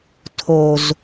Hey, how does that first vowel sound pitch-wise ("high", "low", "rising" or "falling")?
low